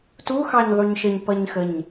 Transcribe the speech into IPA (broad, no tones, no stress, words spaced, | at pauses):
tu xɑɲðˤuɲʃəɲ pʌɲxəɲ